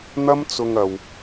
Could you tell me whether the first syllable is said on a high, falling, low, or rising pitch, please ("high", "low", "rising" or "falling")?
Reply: high